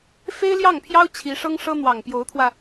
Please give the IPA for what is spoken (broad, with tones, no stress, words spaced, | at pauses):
fe˥ɪ̯ljɑ˥˩ŋpʰjɑ˥ʊ̯ t͡ɕʰi˧˥ʂɤ˥ŋʂɤ˥ n̪wɑ˨˩ŋpjo˧˥ʊ̯t̪ʰwä˧